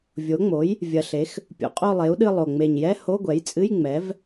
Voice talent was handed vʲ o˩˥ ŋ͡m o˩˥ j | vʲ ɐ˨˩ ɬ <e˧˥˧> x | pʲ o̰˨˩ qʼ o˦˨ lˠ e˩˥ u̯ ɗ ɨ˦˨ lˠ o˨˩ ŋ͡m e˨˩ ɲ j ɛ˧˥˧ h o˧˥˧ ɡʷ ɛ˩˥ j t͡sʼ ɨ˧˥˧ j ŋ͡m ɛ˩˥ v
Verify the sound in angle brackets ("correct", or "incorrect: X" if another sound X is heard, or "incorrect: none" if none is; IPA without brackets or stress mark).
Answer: incorrect: e˩˥